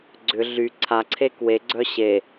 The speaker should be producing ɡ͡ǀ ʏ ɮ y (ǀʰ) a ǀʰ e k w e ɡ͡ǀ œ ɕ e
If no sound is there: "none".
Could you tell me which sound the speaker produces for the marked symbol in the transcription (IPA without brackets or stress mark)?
ǀʰ